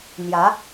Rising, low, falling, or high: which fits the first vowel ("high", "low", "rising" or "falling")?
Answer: rising